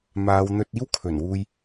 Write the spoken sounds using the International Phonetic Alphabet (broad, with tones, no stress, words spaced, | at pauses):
maː˨˧wn̪ɵ˧t̚ iː˥wkʰɵ˨˩nwuː˧j